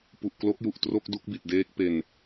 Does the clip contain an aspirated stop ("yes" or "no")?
no